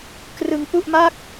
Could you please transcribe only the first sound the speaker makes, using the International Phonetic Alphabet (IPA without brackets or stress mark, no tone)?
k